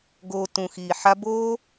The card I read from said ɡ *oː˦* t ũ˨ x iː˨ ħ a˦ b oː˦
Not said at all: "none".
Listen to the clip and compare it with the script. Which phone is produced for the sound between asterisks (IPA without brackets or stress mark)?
oː˧